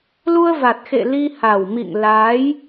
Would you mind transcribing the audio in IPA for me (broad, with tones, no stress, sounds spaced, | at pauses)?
l u˧ ə̯ v a˨˩ t̚ x ḛ˧˨ l i˧ h a˨˩ w m ḭ˧˨ ŋ l aː˨˦ j